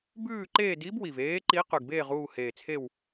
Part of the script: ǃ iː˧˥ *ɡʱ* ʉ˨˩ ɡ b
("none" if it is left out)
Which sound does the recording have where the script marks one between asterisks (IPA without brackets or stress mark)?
q